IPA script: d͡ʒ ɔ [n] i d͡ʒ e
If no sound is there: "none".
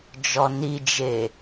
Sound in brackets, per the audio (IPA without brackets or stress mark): n